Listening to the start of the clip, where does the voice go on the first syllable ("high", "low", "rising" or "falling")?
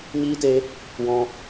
high